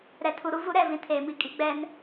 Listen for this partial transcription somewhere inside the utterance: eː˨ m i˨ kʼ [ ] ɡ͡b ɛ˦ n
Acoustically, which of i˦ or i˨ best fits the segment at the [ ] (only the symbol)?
i˦